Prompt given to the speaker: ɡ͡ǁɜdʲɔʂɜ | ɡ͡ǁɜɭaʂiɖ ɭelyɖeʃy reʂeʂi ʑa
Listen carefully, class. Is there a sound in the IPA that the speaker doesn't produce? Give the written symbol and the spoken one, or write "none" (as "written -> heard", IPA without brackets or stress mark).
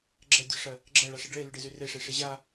ʃ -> z